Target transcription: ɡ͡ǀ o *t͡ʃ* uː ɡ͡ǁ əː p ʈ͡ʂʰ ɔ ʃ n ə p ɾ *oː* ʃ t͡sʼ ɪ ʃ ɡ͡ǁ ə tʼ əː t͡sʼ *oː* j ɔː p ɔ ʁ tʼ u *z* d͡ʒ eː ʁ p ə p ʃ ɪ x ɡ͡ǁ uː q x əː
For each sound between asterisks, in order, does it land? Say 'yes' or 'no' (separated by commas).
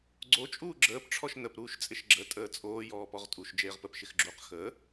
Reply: no, no, yes, no